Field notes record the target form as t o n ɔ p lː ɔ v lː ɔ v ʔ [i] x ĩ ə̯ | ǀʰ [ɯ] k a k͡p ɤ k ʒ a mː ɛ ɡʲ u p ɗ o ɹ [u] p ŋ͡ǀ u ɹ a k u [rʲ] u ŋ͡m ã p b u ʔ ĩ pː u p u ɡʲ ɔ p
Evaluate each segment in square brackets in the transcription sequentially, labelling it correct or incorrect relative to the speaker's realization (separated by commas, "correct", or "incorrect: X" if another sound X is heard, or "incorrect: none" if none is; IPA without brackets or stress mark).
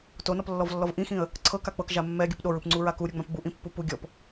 incorrect: ĩ, incorrect: ɤ, incorrect: ɯ, incorrect: ɾʲ